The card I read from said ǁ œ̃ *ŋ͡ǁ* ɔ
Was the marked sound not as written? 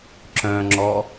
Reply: no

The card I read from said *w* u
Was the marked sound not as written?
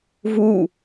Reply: yes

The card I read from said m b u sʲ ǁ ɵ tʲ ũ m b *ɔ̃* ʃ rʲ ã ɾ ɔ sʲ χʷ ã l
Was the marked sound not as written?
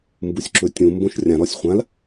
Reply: yes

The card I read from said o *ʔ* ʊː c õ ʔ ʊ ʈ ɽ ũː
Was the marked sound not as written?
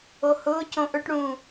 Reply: yes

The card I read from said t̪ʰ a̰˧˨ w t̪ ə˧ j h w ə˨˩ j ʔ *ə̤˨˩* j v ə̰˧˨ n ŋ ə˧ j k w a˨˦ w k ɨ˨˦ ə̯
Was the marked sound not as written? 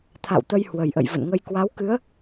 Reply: yes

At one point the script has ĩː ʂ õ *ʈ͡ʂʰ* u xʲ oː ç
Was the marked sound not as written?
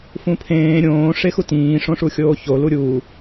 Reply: yes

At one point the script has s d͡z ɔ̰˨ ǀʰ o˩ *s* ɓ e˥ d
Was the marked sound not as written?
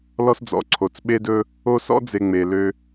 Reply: yes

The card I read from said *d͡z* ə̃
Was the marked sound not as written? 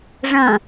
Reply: yes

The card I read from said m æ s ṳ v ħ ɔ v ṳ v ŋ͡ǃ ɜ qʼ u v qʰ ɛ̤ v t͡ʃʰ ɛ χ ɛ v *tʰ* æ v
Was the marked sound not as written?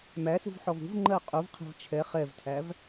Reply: no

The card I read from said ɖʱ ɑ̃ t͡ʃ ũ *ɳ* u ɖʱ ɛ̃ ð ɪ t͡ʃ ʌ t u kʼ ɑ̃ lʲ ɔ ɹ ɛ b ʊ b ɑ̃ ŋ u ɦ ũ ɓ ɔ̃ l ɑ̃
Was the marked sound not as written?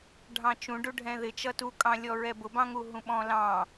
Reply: yes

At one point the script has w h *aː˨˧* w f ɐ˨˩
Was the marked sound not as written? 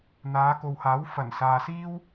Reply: yes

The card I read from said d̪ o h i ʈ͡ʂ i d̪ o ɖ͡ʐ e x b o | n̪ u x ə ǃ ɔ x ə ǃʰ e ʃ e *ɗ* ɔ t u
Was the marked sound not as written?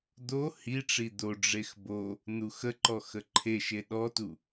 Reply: no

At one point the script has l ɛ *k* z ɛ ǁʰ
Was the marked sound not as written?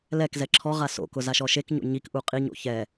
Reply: no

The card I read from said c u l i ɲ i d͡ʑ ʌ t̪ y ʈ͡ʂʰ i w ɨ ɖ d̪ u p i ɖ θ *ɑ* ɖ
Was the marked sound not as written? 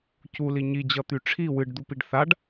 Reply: yes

